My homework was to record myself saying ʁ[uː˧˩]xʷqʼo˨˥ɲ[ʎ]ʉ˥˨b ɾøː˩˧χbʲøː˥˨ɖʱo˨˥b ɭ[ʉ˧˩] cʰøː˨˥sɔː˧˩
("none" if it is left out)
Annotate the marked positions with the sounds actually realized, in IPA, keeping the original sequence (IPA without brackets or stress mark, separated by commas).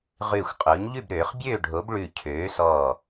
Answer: ʉː˧˩, ʎ, ʉ˧˩